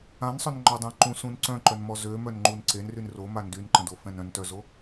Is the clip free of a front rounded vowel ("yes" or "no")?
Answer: no